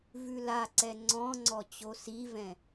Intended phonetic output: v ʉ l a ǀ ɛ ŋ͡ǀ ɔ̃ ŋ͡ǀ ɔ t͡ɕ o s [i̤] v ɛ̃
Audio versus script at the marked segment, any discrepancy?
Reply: yes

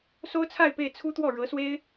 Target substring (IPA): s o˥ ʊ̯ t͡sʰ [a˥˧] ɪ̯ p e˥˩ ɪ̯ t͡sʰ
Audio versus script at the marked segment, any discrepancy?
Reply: no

